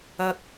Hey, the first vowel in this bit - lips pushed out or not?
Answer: no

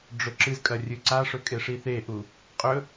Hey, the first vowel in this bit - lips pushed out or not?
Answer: yes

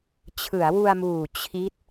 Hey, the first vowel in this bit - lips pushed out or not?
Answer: no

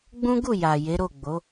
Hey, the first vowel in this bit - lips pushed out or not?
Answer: yes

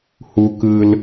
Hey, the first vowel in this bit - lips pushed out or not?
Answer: yes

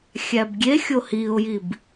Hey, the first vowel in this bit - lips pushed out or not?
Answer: no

